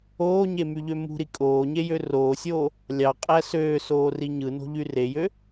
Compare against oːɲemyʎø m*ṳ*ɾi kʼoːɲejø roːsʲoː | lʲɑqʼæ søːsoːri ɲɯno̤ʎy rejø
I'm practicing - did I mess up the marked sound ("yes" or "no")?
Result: no